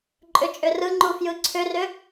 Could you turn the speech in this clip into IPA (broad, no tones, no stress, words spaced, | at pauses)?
ǃʼʏt͡ʃʼʏrɯŋ͡ǃu fjɯǀʰʏrʏ